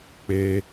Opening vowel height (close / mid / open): mid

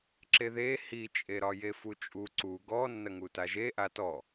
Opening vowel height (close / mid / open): mid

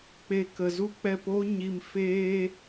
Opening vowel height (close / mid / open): mid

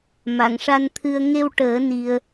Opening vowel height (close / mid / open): open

